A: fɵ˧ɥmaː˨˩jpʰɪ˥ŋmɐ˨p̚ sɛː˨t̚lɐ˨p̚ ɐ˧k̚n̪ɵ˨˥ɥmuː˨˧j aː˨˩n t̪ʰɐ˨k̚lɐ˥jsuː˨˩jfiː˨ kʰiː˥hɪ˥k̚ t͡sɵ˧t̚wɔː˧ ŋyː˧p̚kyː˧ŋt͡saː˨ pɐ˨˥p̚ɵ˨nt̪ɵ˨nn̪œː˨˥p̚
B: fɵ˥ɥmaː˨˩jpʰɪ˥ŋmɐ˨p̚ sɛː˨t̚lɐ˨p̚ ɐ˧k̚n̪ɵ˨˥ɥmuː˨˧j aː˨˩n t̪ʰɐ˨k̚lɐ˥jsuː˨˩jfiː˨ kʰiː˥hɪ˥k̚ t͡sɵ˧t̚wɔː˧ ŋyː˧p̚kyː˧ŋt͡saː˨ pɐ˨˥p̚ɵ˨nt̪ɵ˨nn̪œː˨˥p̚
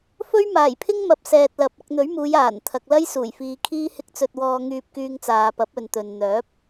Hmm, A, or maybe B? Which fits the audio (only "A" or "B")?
B